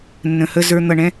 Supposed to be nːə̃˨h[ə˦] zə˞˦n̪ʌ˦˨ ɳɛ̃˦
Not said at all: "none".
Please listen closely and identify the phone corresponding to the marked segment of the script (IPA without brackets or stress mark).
ə˦